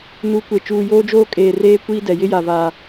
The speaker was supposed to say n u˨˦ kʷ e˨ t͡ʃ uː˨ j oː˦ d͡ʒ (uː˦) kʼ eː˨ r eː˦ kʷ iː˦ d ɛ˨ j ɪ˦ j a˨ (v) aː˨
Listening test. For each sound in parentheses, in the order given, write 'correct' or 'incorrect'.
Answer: incorrect: oː˦, correct

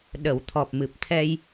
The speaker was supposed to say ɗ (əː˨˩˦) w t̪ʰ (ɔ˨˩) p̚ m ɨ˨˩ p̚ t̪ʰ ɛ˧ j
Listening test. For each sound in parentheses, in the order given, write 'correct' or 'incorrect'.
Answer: incorrect: ə˨˩˦, correct

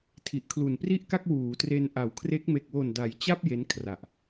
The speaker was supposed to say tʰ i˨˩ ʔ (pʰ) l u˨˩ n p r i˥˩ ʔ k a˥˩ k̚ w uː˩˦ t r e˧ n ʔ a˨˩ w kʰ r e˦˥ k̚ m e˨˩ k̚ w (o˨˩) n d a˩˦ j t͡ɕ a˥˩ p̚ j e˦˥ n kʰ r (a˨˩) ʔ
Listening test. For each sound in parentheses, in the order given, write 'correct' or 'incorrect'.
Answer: incorrect: kʰ, correct, correct

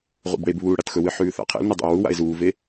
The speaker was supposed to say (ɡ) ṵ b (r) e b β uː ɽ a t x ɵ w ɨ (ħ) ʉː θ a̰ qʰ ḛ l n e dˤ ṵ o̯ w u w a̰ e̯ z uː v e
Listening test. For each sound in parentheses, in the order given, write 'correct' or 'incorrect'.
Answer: incorrect: ʁ, incorrect: ɽ, correct

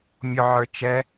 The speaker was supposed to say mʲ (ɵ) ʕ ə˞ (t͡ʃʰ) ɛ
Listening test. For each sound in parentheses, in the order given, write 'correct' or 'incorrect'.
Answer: incorrect: ʊ, incorrect: t͡ʃ

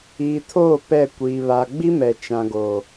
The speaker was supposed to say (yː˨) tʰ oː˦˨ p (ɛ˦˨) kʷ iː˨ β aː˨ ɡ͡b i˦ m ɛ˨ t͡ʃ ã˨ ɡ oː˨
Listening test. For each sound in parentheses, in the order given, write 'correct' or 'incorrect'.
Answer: incorrect: iː˨, correct

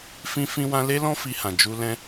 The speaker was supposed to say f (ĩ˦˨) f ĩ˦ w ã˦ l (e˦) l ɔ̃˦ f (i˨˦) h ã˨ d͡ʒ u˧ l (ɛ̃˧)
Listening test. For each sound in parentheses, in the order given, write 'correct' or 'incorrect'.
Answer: incorrect: ĩ˦, correct, incorrect: i˧, correct

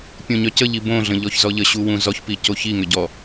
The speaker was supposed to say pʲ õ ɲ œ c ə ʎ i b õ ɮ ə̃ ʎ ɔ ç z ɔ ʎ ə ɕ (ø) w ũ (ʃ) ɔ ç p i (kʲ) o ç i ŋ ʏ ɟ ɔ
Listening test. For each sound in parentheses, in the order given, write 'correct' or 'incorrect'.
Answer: incorrect: u, incorrect: z, incorrect: c

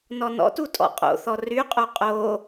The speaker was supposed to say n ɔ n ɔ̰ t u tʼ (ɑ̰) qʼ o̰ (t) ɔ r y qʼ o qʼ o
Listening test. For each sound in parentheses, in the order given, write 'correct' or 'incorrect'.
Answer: incorrect: ɔ̰, incorrect: θ

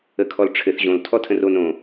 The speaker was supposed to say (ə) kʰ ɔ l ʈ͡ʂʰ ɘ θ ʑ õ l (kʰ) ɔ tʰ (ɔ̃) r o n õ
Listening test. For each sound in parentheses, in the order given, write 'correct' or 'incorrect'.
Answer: correct, incorrect: tʰ, incorrect: ə̃

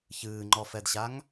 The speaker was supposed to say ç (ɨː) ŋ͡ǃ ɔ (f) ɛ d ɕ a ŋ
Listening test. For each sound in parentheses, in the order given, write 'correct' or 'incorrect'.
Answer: correct, correct

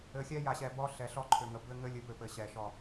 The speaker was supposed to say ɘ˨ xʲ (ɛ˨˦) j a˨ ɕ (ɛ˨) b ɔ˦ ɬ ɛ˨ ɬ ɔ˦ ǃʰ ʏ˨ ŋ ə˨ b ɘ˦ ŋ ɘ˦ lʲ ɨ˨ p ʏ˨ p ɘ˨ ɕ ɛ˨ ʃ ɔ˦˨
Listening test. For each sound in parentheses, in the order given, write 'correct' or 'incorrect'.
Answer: incorrect: ɛ˦, correct

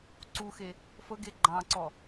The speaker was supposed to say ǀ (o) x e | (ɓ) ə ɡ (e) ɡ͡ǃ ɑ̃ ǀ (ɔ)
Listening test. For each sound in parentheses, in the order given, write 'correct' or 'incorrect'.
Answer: incorrect: u, incorrect: f, correct, correct

